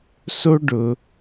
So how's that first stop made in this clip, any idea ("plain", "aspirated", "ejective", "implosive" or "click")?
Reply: plain